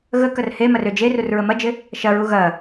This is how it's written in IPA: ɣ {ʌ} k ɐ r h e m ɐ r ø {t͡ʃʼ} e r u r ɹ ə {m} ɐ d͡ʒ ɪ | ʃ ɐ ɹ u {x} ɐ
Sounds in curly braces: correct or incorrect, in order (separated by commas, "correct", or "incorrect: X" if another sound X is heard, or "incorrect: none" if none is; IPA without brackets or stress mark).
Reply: incorrect: ə, incorrect: d͡ʒ, correct, incorrect: ɣ